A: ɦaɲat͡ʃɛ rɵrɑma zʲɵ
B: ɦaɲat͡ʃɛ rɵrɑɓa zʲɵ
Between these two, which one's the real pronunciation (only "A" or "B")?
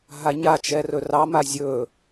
A